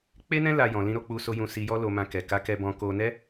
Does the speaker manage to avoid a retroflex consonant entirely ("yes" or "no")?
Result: yes